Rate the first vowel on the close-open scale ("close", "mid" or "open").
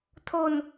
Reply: mid